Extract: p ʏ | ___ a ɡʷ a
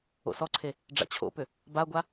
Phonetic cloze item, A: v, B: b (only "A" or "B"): B